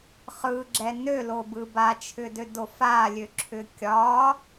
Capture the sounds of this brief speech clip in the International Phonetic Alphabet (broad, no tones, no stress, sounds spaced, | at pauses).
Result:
χ ɯ ɡ͡ǁ ɛ n ø l o b ɯ b a t͡ʃʰ ʏ d ø d o f a lʲ ø ǁʰ ʏ kʲ ɒ